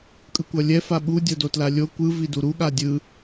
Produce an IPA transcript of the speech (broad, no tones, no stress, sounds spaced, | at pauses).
kʼ ɯ kʷ ʌ lʲ ɛ f a ɓ u dʲ o d o t l a lʲ o kʷ ɯ v i d u ɾ u ɠ a dʲ ɯ